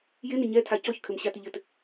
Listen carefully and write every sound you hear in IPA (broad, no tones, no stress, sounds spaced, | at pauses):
j ɪ n ɪ ɲ ɛ tʰ a c ɔ ç kʰ ɘ m ɕ a t ɪ ʎ ɘ t